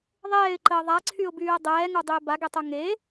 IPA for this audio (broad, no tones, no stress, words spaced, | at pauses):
ðˤɛːɪ̯ǃəː ðˤaǀʰyʊ̯byːə̯ dˤɛːŋodˤøɪ̯ baɡɛtˤo ŋe